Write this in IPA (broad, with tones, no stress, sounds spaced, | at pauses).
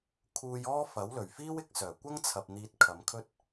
kʰ uː˧ j ɔː˥ f ɐ˨˥ w l ɵ˨˩ ɥ f iː˥ w ɪ˧ k̚ s œː˨˩ kʷ ɐ˥ ŋ t͡sʰ ɐ˨ p̚ n̪ iː˧ t̚ kʰ ɐ˨˧ m kʰ ɵ˥ t̚